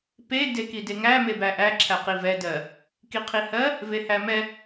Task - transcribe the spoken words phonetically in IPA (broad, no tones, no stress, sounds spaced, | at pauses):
p e d e k i d e ŋ æ m e b æ ʔ æ ǁʰ æ q i v ɛ d ɜ | k i qʰ i h ɜ | v e h æ m ɛ